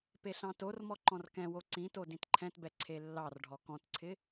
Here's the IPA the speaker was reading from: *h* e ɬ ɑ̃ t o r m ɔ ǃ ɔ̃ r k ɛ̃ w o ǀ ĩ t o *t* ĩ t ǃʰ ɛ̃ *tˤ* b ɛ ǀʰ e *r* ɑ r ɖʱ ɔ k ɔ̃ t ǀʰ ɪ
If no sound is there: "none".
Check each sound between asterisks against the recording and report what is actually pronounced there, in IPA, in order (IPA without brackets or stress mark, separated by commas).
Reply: p, d, t, lː